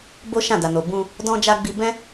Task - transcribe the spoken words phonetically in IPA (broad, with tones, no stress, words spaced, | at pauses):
bo˦ʃã˦˨ da˨no˨bũ˧ | dɔ̃˧ d͡ʒa˧ ɡ͡bi˧bɛ̃˦